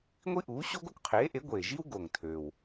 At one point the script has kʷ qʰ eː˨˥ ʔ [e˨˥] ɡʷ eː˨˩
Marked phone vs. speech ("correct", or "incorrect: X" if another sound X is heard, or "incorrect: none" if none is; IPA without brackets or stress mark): correct